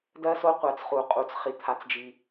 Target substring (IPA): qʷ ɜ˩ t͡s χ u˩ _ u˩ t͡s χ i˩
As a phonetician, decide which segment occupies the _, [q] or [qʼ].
qʼ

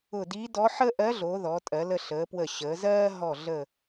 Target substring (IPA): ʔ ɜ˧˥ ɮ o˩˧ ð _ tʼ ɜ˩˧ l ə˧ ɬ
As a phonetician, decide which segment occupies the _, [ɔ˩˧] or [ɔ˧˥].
ɔ˩˧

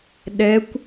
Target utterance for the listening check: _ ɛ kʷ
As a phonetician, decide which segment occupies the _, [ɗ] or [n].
ɗ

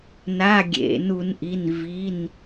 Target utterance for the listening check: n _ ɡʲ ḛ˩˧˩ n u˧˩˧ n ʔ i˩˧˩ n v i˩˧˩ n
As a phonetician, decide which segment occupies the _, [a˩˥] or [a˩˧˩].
a˩˧˩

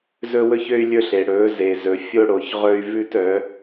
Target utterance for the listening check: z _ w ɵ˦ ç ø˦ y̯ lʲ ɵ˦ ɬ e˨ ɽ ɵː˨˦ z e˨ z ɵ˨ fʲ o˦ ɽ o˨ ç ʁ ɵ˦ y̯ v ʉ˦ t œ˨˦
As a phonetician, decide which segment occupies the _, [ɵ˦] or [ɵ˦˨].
ɵ˦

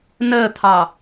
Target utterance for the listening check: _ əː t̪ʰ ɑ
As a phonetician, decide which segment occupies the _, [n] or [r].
n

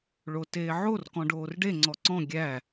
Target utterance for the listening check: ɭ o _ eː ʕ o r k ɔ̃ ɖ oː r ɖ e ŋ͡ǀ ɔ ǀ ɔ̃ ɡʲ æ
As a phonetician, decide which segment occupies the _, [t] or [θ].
t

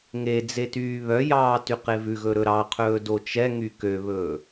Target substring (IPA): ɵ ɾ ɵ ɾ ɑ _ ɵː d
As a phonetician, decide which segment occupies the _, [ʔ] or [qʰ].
qʰ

